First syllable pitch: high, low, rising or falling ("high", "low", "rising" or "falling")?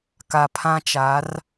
low